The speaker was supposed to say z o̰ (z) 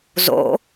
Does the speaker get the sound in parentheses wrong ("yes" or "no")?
yes